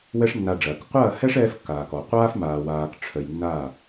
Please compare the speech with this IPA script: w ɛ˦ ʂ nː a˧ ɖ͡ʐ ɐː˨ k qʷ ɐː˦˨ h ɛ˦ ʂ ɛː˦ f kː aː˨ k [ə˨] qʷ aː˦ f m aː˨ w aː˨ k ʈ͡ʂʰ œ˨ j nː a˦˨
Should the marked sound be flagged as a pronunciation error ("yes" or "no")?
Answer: yes